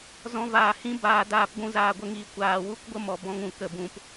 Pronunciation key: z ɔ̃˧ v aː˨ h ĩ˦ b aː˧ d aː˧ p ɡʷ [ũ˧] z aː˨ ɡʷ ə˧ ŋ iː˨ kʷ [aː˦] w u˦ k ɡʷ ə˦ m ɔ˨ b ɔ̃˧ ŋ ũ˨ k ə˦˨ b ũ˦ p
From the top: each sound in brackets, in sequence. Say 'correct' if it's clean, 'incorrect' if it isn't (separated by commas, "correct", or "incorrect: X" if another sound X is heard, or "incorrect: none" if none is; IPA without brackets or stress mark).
correct, incorrect: aː˨